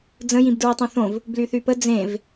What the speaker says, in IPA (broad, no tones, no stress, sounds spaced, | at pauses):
d͡z ə̃ j ĩ b d ɹ i tˤ õ θ õ v | b l y θ y p ə d͡z ẽ v